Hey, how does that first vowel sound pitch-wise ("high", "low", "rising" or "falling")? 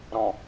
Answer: low